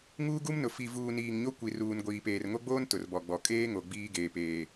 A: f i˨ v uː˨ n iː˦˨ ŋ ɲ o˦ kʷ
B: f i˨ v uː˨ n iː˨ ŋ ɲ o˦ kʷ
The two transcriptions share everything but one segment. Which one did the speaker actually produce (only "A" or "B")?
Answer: B